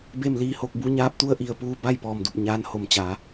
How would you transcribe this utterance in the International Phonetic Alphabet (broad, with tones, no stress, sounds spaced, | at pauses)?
b e˥˨ m l iː˧ h o˧ k̚ b u˧˥ ɲ aː˧˥ p̚ t̪ u˧˥ ə̯ ʔ i˩ ə̯ p uː˧ b a˥˨ j p ɔː˧˩ m d u˧˩ p̚ ɲ aː˧˥ n h o˧˩ m t͡ɕ a˩˧